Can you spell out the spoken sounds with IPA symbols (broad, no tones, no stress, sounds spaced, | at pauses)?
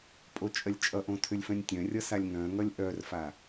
pʼ o t͡ʃʼ ɜ lʲ t͡ʃʼ ʌ ʔ õ tʰ ʏ lʲ f œ̃ nʲ tʲ œ̃ rʲ ʌ s a lʲ ŋ œ̃ ŋ ʌ lʲ ʔ œ r f a